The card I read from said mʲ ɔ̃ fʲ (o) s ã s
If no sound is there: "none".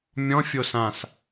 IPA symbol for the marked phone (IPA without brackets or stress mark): o